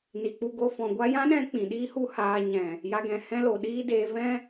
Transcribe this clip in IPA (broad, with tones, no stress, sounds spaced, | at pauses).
n i˨ k͡p u˧ ɡ o˧ f ɔ̃˨ ɡʷ a˦ j ã˦ ɗ ɛ̃˧ k͡p ĩ˨ ɗ iː˦ h u˦ h aː˧ ɲ ɛ̃˨ | j a˧ ɡ ɛ̃˨ h ɛ̃˦ l o˨ ɗ iː˦ d eː˧ v ɛ̃˦